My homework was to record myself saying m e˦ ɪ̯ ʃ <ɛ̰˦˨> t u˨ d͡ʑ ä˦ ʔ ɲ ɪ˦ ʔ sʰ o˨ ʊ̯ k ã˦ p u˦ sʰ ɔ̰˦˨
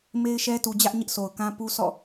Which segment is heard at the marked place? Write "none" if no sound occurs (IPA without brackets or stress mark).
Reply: ɛ˦